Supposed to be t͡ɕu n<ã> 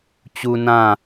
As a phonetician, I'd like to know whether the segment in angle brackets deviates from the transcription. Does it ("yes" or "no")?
no